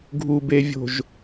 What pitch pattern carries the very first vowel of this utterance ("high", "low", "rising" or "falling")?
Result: low